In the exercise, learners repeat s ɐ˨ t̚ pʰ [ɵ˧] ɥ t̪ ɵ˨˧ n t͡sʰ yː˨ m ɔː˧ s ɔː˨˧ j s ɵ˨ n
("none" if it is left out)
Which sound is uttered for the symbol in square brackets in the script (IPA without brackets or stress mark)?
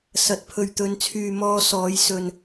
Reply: ɵ˨